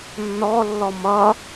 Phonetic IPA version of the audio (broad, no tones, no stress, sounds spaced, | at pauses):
nː ɔ lː ɔ m ʌ